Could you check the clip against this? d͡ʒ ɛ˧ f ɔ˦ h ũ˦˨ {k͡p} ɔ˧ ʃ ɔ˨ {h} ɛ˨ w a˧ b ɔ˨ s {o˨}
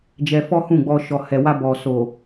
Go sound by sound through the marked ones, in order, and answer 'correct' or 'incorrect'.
incorrect, correct, correct

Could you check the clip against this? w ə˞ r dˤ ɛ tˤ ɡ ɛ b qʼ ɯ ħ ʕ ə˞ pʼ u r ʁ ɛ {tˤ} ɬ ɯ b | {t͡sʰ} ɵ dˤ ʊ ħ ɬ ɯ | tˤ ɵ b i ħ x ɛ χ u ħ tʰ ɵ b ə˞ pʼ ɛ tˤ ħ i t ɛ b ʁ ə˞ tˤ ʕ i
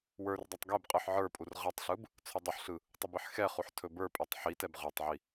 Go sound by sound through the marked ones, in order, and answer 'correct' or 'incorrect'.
correct, correct

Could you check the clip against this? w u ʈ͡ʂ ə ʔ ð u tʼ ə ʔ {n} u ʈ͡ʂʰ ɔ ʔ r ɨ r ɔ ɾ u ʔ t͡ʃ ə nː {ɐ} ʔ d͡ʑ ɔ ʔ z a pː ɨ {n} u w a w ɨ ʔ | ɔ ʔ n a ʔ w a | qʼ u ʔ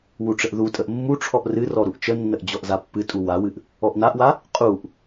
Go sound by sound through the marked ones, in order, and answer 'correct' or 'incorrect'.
incorrect, incorrect, incorrect

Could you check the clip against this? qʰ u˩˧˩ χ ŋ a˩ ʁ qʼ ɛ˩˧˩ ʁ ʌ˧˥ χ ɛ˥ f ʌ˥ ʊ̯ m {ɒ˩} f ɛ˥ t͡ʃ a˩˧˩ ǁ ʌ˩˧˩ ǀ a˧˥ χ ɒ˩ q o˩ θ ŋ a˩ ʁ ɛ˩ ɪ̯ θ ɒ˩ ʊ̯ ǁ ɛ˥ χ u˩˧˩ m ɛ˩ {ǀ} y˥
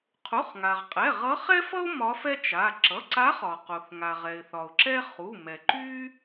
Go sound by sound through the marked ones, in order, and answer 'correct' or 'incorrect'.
incorrect, incorrect

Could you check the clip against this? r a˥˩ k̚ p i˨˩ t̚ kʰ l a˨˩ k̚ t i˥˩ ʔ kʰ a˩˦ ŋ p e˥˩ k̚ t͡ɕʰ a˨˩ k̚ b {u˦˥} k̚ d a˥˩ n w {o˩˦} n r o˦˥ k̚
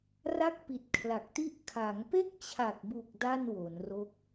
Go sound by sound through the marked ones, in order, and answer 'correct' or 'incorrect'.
incorrect, correct

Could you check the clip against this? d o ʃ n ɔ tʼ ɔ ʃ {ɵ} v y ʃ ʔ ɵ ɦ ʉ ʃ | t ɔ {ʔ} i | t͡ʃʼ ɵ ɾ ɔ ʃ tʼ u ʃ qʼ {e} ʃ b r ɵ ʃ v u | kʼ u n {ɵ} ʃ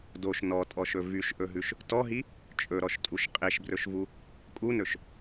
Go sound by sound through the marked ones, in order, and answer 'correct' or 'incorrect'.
correct, incorrect, correct, correct

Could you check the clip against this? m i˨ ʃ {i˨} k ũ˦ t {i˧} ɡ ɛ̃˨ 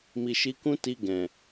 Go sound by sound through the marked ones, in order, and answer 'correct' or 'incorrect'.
incorrect, correct

